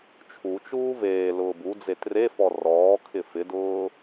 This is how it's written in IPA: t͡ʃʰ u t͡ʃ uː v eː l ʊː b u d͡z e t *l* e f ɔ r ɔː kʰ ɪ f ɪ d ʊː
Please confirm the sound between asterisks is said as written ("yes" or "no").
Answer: no